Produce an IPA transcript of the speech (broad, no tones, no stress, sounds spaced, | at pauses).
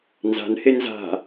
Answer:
n z a̤ n h e n z a̤